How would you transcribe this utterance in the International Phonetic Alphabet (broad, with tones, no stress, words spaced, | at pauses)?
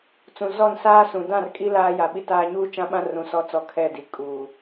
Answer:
t͡sũ˨zɔ˦˨nsaː˦ sũ˨dã˦˨rkʼi˦ laː˦ja˨ɓi˦taː˦ ɲuː˦t͡ʃã˦ɓã˦ rũ˨sɔ˨˦t͡sɔ˨ kʰɛ˦˨ di˨ kʼuː˨